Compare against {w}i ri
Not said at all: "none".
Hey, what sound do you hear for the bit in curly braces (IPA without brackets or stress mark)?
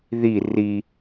ð